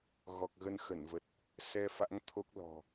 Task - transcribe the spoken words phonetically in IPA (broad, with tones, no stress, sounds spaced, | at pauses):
ɣ ɔ˨˩ k̚ ɣ ə˧ n x ə˧˩ n v ə˨˩ t̚ | s ɛ˧ f a̰˧˥ ŋ t̪ʰ o˦˥ k̚ l ɔ̤˨˩